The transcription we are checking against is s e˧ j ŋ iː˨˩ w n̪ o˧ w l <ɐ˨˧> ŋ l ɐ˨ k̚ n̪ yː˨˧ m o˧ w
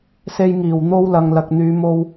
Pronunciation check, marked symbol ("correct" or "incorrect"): incorrect